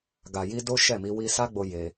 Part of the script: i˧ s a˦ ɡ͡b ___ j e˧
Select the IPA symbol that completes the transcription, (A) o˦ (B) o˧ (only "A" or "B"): B